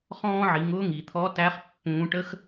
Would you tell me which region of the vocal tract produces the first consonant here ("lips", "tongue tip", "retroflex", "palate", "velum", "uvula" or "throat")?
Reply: uvula